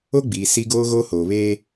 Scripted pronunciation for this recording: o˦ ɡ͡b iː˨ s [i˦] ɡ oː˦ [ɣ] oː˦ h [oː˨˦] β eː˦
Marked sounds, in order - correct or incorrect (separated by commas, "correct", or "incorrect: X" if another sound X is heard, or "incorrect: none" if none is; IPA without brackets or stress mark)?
correct, correct, incorrect: oː˨